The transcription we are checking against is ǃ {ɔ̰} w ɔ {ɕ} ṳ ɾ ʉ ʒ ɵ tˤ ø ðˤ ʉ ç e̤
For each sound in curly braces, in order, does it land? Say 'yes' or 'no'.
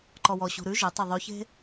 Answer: no, yes

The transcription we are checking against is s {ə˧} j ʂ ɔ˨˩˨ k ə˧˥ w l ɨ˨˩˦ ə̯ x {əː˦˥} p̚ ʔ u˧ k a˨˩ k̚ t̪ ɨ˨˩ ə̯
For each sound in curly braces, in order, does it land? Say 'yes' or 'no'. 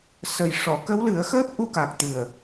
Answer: no, yes

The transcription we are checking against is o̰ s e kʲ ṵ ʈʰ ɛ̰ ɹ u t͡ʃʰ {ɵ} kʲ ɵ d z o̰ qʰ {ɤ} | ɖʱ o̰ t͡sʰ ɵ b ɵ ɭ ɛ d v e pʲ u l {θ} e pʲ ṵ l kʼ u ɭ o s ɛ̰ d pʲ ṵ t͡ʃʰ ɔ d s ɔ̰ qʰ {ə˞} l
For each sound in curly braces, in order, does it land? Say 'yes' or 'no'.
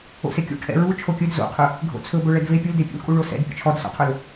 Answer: no, no, no, yes

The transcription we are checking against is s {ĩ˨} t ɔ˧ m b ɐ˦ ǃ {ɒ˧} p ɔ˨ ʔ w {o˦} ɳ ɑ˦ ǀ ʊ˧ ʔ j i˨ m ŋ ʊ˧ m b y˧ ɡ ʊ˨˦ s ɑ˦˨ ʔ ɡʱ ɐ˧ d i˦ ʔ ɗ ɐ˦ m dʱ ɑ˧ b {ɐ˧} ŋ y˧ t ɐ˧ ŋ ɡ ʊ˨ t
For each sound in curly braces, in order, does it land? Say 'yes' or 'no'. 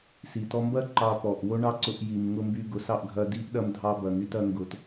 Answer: no, no, yes, no

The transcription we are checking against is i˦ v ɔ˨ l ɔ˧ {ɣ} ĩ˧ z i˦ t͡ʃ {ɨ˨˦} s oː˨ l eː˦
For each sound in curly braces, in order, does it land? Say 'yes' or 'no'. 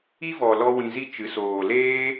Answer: no, yes

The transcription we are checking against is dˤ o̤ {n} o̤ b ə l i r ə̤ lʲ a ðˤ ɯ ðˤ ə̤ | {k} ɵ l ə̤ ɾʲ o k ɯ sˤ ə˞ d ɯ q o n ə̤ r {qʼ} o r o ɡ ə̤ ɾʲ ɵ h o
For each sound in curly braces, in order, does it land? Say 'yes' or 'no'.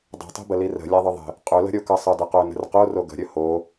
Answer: no, no, no

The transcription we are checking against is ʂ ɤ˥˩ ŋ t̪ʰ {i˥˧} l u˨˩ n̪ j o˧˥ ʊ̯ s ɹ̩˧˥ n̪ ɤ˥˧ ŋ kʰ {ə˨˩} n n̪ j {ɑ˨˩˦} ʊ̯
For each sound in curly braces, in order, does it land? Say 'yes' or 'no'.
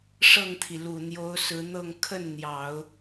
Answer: no, no, yes

